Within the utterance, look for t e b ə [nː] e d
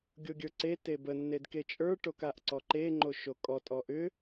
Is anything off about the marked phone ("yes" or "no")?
no